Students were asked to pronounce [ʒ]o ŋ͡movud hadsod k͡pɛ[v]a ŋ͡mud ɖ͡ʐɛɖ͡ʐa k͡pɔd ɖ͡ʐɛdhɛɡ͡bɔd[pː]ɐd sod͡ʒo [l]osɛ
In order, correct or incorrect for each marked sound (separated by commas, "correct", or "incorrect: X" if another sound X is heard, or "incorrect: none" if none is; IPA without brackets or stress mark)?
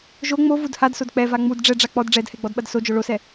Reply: correct, correct, incorrect: ɓ, incorrect: ɭ